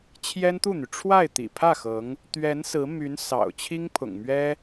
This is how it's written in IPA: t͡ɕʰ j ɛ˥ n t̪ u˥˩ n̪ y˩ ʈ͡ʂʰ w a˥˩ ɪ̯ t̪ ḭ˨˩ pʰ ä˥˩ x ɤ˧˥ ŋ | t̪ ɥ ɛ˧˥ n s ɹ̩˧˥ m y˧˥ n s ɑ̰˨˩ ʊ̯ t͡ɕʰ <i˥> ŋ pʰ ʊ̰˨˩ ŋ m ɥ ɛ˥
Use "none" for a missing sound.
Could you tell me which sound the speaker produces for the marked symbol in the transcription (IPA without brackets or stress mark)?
i˥